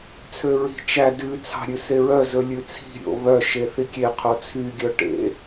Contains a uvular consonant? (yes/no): yes